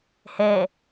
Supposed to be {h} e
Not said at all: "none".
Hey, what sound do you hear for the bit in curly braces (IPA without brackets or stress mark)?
h